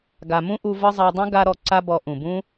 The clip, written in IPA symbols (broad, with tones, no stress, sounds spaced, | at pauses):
ɡ a˨ m ũ˦ ʔ u˧ v ɤ˦ zˤ a˧ dˤ ũ˦ ɡ a˧ ɾ ɔ˧ ǀ a˦ b ɔ˧ ʔ ũ˨ b ũ˦